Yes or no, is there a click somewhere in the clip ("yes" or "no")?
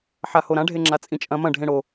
yes